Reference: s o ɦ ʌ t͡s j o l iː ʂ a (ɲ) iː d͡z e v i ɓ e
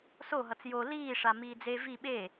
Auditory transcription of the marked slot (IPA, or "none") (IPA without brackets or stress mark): m